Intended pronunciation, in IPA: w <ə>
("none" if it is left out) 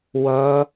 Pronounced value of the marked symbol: ʌ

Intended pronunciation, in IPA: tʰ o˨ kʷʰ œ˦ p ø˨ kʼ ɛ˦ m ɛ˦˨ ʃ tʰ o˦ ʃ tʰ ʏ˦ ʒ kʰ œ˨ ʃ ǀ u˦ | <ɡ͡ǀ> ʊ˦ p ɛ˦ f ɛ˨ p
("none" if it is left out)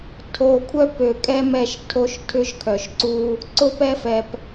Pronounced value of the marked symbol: ǀ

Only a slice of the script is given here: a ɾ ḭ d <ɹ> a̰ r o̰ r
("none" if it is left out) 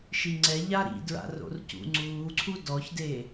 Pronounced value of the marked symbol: ɹ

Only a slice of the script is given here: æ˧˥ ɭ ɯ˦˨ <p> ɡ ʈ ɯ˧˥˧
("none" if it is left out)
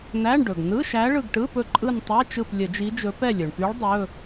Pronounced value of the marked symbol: none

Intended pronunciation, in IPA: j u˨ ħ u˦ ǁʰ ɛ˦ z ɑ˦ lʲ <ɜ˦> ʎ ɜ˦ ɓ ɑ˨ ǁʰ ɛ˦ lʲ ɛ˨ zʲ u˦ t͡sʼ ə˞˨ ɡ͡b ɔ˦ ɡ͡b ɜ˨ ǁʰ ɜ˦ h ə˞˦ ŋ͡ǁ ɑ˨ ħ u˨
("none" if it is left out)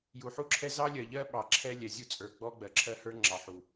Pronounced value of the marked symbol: ɜ˨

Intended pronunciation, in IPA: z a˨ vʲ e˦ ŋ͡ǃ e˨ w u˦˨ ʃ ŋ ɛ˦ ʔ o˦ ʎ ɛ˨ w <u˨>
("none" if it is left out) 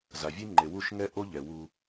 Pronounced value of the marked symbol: u˦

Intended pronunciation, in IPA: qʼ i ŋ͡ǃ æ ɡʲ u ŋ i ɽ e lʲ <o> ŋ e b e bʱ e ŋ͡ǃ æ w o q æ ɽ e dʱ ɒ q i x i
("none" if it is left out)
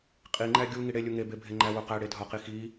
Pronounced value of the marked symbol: u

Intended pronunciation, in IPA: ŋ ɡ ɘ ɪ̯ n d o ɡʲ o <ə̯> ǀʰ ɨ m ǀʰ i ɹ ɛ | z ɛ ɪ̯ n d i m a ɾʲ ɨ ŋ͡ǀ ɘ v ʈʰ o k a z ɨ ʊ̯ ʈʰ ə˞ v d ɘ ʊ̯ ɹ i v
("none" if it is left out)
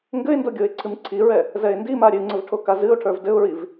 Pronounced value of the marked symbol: ɪ̯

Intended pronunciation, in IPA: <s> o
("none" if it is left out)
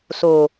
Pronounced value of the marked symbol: s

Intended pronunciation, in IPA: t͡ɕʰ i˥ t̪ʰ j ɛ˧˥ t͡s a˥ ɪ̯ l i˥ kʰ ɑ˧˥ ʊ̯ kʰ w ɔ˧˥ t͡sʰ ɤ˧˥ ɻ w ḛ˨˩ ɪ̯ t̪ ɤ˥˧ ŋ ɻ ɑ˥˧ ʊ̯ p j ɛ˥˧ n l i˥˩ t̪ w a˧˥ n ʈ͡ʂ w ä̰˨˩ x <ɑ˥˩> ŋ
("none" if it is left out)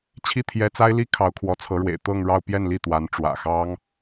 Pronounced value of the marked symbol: ɑ˥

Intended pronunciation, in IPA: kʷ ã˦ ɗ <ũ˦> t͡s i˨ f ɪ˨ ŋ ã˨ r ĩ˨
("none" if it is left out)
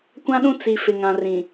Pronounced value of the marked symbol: ũ˦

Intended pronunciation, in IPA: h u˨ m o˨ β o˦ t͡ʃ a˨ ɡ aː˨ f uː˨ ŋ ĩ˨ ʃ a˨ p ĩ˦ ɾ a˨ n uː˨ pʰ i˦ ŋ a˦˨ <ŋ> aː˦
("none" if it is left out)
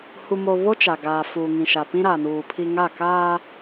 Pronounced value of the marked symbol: k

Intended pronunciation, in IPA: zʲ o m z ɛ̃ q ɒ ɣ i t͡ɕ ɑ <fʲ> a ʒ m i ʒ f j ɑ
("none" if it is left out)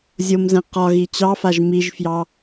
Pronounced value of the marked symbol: f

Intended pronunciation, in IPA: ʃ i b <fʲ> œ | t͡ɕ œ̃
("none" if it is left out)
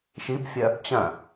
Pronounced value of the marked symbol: fʲ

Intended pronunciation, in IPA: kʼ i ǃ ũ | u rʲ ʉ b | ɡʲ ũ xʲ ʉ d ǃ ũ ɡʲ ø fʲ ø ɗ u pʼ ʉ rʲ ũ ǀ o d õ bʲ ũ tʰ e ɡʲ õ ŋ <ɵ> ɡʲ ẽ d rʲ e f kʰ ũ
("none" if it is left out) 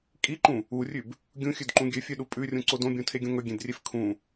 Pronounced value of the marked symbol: ɵ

